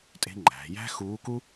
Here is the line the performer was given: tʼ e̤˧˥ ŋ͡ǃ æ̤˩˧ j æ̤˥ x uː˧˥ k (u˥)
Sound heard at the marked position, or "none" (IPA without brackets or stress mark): u˥